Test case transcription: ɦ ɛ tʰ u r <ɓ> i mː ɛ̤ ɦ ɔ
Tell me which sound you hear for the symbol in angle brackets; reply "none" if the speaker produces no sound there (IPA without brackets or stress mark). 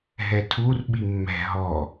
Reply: ɓ